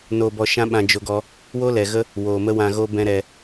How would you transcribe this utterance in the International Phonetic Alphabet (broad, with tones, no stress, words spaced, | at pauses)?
no˧bɔ˧ʃã˦ ɓã˦d͡ʒo˦ɡɔ˦ | wo˦lɛ˨ɣə˦ | woː˨mə˦wã˧ɣo˦ bɛ̃˧ ɾɛ˧